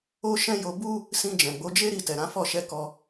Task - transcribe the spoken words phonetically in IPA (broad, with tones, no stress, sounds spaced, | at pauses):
o˦ ʃ ɛ̃˦ j o˧ b u˦ | s ĩ˧ d͡ʒ ɛ̃˨ ɡ͡b o˨˦ d͡ʒ e˦ ɾ i˦˨ t ɛ˨ ɾ ã˨˦ f ɔ˦˨ ʃ ɛ˧ k ɔ˧